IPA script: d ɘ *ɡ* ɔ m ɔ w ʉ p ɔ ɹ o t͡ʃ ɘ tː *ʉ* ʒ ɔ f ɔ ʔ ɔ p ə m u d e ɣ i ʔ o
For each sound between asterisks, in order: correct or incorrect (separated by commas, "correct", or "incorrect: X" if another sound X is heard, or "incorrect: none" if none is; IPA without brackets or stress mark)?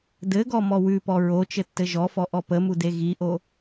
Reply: correct, incorrect: ɘ